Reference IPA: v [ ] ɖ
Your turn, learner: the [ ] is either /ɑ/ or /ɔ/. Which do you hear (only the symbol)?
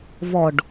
ɔ